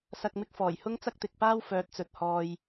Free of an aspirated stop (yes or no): yes